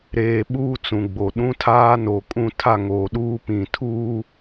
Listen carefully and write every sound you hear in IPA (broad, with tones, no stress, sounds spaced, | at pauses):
ɾ eː˨ ɓ uː˦˨ t͡s ũ˨ ɡ͡b o˨ ɗ ũ˦ tʰ aː˦ n o˨ kʼ ũ˦ tʰ a˦˨ ŋ oː˨ ɗ uː˦ p ĩ˨ tʰ uː˦